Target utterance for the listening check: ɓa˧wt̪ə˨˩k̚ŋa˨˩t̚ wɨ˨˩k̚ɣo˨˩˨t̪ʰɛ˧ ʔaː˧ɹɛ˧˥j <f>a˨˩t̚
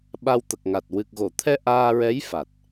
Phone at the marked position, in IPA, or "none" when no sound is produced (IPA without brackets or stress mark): f